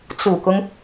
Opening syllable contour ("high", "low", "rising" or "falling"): low